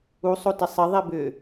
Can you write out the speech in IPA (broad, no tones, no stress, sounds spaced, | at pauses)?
u sˤ o t ɪ sˤ ɪ ðˤ i b ʏ